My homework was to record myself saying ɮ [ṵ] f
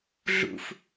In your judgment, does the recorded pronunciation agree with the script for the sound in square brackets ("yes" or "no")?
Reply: yes